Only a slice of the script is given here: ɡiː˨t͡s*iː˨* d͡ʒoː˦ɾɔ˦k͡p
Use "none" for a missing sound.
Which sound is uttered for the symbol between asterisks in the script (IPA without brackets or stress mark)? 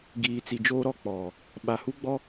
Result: i˨